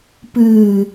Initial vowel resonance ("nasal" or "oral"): oral